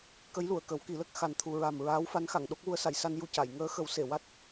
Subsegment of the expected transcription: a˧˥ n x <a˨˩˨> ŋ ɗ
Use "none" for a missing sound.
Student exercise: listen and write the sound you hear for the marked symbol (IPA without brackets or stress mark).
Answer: a˨˩˨